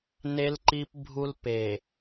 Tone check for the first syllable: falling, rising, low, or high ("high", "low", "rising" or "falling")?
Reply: high